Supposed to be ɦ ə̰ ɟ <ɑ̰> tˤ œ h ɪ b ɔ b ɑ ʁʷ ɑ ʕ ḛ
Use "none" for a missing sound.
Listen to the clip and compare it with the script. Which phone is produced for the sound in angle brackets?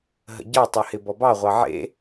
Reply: ɑ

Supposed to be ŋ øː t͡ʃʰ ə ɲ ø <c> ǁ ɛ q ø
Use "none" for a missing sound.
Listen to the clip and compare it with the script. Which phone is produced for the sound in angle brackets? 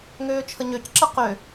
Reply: c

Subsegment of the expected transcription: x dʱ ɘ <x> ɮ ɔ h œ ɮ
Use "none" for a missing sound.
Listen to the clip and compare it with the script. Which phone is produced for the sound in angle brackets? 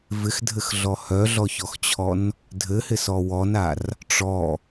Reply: x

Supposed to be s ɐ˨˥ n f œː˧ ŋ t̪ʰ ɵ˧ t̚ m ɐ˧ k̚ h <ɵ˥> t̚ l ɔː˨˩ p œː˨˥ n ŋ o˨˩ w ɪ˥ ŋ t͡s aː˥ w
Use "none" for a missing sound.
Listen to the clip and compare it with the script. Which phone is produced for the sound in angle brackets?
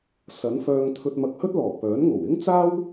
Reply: ɵ˥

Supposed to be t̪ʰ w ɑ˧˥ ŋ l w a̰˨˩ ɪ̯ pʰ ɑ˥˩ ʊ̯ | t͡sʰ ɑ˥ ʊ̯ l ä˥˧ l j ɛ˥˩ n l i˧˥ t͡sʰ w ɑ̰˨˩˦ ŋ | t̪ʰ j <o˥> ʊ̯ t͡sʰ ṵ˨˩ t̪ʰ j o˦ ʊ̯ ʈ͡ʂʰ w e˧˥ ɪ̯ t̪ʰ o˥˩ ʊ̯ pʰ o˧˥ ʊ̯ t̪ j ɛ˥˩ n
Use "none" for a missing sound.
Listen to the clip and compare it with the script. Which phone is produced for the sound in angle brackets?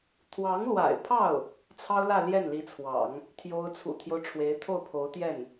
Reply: o˥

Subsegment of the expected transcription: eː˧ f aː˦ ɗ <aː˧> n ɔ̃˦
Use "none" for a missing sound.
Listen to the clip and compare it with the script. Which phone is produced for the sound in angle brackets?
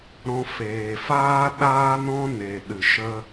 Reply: aː˦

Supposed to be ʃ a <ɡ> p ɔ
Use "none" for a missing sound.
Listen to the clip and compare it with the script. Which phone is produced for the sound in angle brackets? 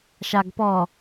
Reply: ɡ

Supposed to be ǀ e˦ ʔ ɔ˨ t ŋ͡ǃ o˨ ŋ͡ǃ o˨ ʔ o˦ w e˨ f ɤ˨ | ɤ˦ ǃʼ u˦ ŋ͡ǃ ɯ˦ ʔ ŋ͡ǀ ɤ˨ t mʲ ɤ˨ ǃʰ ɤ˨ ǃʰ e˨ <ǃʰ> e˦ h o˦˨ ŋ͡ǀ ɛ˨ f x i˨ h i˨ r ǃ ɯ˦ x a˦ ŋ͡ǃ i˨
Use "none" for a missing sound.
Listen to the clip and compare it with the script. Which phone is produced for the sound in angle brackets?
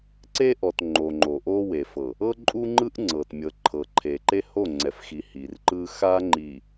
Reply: ǃ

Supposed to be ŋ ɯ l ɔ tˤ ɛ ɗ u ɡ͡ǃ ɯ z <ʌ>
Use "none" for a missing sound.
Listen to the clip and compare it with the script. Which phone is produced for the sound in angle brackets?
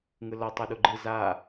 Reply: a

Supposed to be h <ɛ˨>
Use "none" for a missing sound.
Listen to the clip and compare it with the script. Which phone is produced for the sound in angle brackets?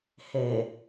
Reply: e˨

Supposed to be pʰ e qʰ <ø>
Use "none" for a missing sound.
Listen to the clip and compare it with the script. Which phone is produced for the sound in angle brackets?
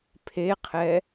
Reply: ɛ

